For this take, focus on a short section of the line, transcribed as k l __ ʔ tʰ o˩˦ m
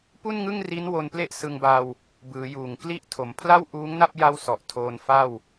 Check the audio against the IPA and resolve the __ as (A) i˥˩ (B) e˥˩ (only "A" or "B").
A